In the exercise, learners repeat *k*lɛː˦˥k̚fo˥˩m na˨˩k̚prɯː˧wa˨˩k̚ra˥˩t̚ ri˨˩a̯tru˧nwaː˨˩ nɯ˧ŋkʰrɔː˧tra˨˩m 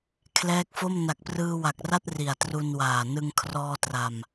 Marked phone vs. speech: incorrect: kʰ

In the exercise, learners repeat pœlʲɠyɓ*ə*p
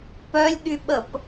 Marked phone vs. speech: correct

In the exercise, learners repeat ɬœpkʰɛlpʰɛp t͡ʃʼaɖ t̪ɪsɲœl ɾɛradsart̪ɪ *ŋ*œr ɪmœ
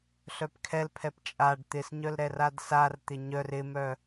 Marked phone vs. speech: incorrect: ɲ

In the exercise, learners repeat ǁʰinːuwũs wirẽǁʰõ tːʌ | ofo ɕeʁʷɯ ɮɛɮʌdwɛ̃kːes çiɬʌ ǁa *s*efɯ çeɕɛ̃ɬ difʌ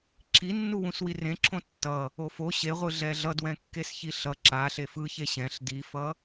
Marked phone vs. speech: incorrect: ɬ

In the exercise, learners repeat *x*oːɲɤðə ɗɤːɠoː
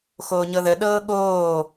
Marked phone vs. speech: correct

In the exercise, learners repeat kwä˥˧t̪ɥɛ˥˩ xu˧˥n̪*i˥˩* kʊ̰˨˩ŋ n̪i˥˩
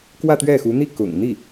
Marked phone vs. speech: correct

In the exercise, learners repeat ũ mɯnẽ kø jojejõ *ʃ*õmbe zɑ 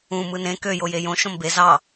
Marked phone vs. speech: correct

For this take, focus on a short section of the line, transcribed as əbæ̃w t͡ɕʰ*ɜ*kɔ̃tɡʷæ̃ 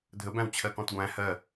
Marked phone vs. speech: correct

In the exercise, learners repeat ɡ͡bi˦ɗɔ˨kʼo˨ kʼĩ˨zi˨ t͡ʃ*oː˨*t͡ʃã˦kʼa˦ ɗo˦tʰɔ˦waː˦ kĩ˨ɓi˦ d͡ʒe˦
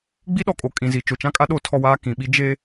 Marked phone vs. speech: incorrect: o˨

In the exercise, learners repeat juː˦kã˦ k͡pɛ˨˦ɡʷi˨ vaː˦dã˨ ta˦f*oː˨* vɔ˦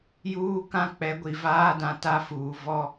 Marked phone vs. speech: incorrect: uː˨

